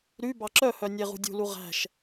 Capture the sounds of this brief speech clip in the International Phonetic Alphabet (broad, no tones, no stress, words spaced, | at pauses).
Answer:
ɾy bɑǁœhœ nʲeʁṳdʲṳlu ʁæ̤ʃ